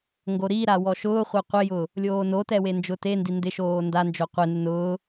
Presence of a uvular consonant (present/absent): present